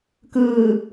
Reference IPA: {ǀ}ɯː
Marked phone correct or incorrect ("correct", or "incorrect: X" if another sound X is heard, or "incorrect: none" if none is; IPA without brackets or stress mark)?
incorrect: k